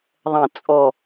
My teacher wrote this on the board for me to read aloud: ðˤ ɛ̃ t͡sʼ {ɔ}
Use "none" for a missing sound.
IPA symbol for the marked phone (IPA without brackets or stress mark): ɔ